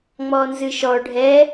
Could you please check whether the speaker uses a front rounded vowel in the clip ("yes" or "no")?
no